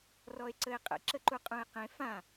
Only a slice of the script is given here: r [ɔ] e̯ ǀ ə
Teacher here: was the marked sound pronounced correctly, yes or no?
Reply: yes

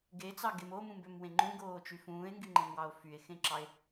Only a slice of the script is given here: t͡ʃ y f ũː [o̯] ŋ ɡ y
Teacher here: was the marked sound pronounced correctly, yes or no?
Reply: no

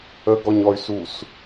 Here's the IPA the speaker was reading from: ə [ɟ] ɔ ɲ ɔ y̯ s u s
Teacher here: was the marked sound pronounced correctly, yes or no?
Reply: no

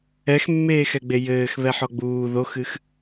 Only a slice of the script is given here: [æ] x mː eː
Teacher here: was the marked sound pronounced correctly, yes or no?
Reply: no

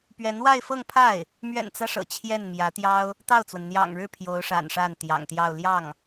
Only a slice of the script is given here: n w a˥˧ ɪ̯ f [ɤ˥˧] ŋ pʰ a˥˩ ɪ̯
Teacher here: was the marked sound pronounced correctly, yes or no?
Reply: yes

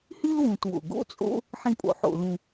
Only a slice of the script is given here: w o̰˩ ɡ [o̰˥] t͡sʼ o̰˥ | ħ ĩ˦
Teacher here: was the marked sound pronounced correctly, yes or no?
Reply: yes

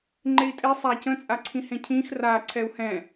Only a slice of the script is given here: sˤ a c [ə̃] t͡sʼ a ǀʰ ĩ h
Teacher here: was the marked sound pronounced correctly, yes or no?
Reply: yes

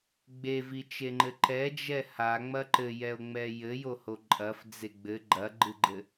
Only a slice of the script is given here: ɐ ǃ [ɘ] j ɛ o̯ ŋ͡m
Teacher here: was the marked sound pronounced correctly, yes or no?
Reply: yes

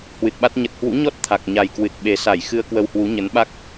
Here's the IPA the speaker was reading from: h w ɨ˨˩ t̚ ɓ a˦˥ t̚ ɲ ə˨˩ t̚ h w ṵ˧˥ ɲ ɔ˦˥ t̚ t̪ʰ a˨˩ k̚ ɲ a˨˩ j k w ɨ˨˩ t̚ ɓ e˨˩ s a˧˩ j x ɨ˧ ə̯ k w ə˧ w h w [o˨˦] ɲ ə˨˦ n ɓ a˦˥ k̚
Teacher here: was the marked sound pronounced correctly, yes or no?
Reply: no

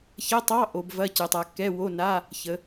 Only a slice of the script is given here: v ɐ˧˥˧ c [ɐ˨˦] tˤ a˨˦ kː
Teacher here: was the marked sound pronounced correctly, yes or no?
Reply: no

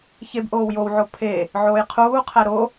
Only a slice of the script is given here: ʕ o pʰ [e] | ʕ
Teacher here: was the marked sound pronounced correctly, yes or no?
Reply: yes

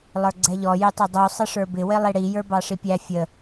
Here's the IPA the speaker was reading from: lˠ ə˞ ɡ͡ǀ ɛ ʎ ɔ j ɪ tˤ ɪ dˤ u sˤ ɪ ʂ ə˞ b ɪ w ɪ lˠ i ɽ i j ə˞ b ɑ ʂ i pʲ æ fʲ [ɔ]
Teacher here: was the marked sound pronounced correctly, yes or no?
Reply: no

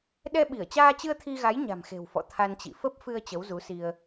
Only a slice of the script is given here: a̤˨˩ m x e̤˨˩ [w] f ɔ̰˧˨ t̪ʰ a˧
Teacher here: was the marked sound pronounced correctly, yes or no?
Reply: yes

